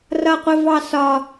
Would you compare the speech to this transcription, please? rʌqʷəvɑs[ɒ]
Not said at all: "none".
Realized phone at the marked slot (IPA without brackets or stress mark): ɒ